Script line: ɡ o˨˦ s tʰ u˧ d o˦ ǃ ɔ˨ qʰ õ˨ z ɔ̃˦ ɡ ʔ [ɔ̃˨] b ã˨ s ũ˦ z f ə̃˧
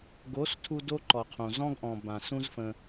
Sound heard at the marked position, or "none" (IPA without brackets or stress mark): ɔ̃˨